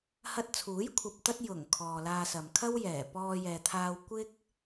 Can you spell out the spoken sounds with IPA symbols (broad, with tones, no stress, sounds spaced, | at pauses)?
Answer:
h ɐ˧ t̚ t͡sʰ uː˨˥ j kʷʰ ɐ˨ p̚ t̪ ɐ˥ t̚ j ʊ˨˩ ŋ kʰ ɔː˨ l aː˧ s ɐ˨ m kʰ ɐ˥ w j ɛː˨˩ p ɔː˧ j ɛː˨ t̪ʰ aː˧ w kʷ ɪ˥ k̚